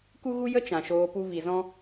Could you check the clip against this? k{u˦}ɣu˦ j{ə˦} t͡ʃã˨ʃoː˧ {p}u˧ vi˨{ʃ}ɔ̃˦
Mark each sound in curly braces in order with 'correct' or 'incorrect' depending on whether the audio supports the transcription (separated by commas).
correct, correct, correct, incorrect